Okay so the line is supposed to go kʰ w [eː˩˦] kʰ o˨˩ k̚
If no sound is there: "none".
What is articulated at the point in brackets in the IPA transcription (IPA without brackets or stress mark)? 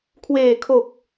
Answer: eː˨˩